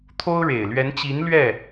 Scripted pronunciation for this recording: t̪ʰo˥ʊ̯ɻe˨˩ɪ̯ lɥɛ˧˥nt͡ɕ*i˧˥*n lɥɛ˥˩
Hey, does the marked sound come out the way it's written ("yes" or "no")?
yes